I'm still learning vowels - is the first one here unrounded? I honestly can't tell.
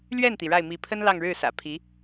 yes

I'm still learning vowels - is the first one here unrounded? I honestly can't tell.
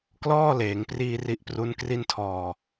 no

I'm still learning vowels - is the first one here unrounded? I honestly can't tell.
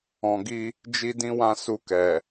no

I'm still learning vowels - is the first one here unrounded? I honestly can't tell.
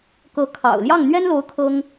yes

